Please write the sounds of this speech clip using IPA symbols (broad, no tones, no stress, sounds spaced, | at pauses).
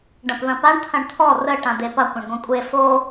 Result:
ɖ ɐ̃ p ð ɐ̃ p a ɳ t̪ʰ ɐ̃ ɳ t̪ʰ ɔ r ə ʈ ã d̪ e p ɐ kʷ ã ɳ ɡʷ ɐ̃ kʷʼ e f o